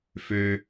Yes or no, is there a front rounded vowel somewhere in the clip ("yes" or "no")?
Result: yes